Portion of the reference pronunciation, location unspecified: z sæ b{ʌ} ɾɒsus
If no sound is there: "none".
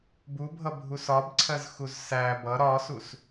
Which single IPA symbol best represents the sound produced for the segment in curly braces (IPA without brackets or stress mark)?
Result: ʌ